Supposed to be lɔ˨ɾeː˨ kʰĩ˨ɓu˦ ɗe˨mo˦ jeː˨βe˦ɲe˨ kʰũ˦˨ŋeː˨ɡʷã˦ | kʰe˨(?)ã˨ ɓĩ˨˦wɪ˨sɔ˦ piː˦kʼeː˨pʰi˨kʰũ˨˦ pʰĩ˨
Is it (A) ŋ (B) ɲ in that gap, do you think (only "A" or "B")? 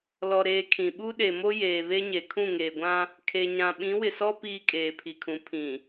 B